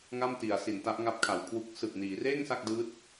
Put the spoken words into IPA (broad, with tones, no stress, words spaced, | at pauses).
ŋa˥˩mti˩˦a̯ si˩˦nta˦˥ʔŋa˦˥p̚kʰa˩˦w kʰwu˦˥k̚ sɯ˨˩k̚niː˩˦reː˥˩ŋ sa˥˩k̚dɯː˦˥t̚